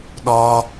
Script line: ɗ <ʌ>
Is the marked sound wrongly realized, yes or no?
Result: yes